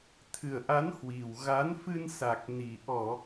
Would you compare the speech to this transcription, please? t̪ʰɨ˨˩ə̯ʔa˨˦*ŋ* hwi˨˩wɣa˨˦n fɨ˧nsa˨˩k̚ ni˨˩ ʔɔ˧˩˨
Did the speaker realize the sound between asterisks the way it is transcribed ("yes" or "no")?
no